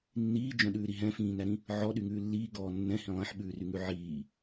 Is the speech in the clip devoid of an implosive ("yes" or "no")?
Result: no